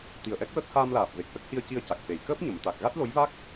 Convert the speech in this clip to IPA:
t̪ i˨˩ ə̯ ʔ ɛ˦˥ k̚ w əː˦˥ k̚ h aː˧ m l aː˨˩ p̚ v e˨˩ k̚ ʔ ə˦˥ k̚ h i˧ ə̯ c i˧ ə̯ c a˨˩ k̚ f e˨˩ j k əː˦˥ p̚ ɲ ə˨˩˨ m t̪ a˨˩ k̚ ɣ a˦˥ t̚ l o˧˥ j v a˦˥ k̚

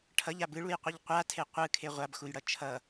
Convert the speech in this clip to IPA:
ʈʰ ʌ ʎ a b ɯ ɭ u j qʷ i ʎ qʷ a tʰ e qʷ ɯ kʰ e ʁʷ a b x u j ɽ ʌ t͡ʃʰ ʌ

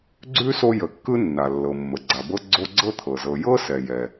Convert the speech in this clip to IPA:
ɡ͡ǀ ʉ˥ s o˦ j ə˩ kː ɯ˦ nː a˩ lː ɤ˩ mː ə˩ ɡ͡ǀ a˩ b ɤ˦ ɡ͡ǀ o˦ ɡ͡ǀ ɤ˥ t̪ʰ ɤ˩ z ɤ˨ j ɤ˥ s ɛ˩ j ɛ˩

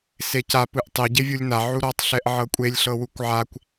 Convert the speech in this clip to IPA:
s e c a p ɯ ʔ tˤ e ɟ e vʲ u lʲ n a ʕ u ɾ ɔ tˤ ɬ ɛ ʔ ʕ ɤ kʷʼ e lʲ ɬ ɤ w u kʷ ʕ a kʷ

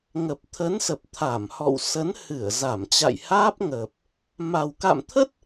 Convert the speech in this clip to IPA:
ŋ ə˨˩ p̚ t̪ʰ ə˨˦ n s ə˨˩ p̚ t̪ʰ a˧˩ m h ɔ̰˧˨ w s ə˨˦ n h ɨ˧˩ ə̯ z a˧˩ m t͡ɕ a̰˧˨ j h aː˦˥ p̚ ŋ əː˨˩ p̚ | m a˨˩ w k a̰˧˨ m t̪ʰ ə˦˥ t̚

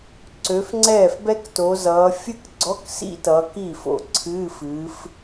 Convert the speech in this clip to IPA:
ǀ ø˨˦ f ŋ͡ǀ ɛː˥˩ f b ɛ˥ k t o˨˦ z ʌː˨˦ fʲ ɨ˥ k ɡ͡ǀ ɔ˧˥˧ k s ḭ˥ t ʌː˨˦ k i˥˩ f o̰˥˩ ǀʰ ɨː˧˥˧ f ɨː˨˦ f

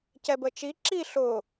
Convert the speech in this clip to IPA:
c ɛ b ə t͡ʃ i ǁ i ɬ ʊ

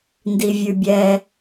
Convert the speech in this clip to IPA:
n d i vʲ ʉ bʲ ɛ

